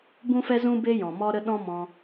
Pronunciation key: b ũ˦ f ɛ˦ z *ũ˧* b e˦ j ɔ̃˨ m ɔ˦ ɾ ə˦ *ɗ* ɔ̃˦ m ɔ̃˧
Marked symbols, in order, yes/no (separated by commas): no, yes